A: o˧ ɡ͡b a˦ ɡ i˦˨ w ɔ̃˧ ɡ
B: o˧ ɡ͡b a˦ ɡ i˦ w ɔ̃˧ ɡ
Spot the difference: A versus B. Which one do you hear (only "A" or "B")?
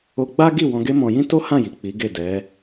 A